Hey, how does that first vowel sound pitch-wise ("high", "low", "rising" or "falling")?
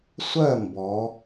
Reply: falling